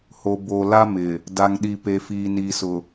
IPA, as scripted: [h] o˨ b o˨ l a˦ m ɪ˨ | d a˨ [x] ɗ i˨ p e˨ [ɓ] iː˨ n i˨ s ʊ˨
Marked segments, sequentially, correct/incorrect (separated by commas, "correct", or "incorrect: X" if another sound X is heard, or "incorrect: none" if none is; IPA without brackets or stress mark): correct, incorrect: ŋ, incorrect: f